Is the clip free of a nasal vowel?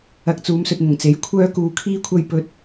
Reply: yes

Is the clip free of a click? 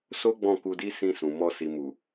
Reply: yes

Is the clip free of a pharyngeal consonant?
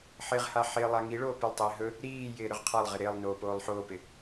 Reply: no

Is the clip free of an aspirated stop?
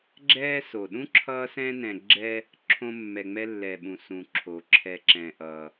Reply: no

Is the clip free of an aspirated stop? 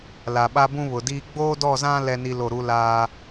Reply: yes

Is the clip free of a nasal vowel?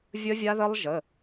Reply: yes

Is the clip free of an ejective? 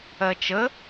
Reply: yes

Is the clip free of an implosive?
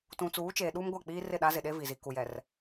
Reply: no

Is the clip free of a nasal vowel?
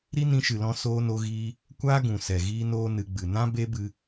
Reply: no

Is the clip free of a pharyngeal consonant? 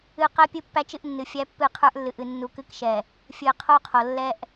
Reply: yes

